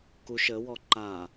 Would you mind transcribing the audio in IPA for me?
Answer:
k u ʃ ə w ɔ ǃ a

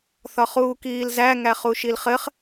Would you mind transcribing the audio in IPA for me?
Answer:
θ ɒ χ uː k iː l z æ ŋ æ χ u ʃ i l χ ɘ χ

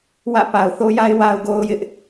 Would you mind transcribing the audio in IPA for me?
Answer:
w ä̰˦˨ p a˨ ʊ̯ θ o˦ j a˦ ɪ̯ w a˨ ʊ̯ ɡ o˦ ʊ̯ j ɪ˦ ʔ

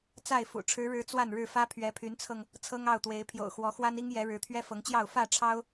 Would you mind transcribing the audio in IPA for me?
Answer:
t͡s a˥˨ ɪ̯ f ṵ˨˩ ʈ͡ʂʰ ɻ̩˨˦ ɻ ɻ̩˨˦ t͡s w a˥˨ n ɻ ɻ̩˥˨ f ä˦ pʰ ɥ ɛ˨˦ pʰ y˨˦ n t͡sʰ ɤ˧ ŋ | t͡sʰ ɤ˦ ŋ ɑ˥˨ ʊ̯ t̪ w e˨˦ ɪ̯ pʰ j o̰˨˩ ʊ̯ x w ɔ˨˦ x w a˦ n i˦ ŋ j ɛ˨˦ ɻ ɻ̩˨˦ t̪ʰ ɥ ɛ˦ f ɤ˨˦ ŋ t͡ɕ j ɑ˥˨ ʊ̯ f ä˥˨ ʈ͡ʂʰ ɑ˦ ʊ̯

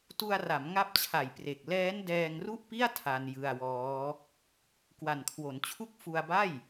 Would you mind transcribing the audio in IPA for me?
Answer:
t u˧ a̯ r a˩˦ m ŋ a˦˥ p̚ t͡ɕʰ a˨˩ j p r e˨˩ k̚ l ɛː˦˥ n d ɛː˧ ŋ r u˥˩ ʔ p i˥˩ a̯ tʰ a˧ n j ɯ˧ a̯ w ɔː˦˥ | k w a˨˩ n kʰ w o˩˦ n t͡ɕʰ u˥˩ k̚ f u˧ a̯ b a˥˩ j

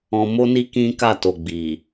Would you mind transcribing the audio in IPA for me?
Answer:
ɔ̃˧ m o˦ n i˦ k ĩ˦ k a˦˨ t o˨ ɡ͡b i˨

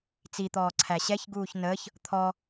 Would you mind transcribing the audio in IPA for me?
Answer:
t͡s i t̪ ɔː ǀʰ æ ɕ ɛ ç ɡ uː ç n əː ç | t̪ʰ ɔ

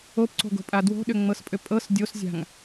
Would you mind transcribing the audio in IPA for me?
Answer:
o p ǀ o̤ ɡ o̤ pʼ a d w o̤ ɗ ʏ ŋ͡m ɤ s pʼ ʏ pʼ ɤ s dʲ o s zʲ a̤ ŋ

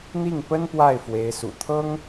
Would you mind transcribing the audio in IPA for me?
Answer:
n̪ i˥˩ ŋ p ə˥ n p w a˥˩ ɪ̯ f w e˧˥ ɪ̯ s ṵ˨˩ t̪ʰ ɤ˥ ŋ

